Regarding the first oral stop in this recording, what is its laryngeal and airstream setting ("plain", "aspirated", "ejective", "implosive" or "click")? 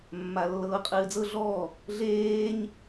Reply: ejective